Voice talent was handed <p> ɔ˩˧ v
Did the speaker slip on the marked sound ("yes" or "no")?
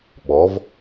yes